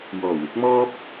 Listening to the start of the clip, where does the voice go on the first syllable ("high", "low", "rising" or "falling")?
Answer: low